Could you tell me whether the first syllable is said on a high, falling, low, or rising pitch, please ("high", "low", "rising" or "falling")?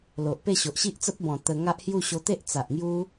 low